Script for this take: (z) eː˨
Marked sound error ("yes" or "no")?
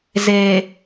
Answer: no